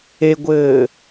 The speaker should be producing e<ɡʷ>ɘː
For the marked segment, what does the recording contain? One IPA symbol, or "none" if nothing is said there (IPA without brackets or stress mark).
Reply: ɡʷ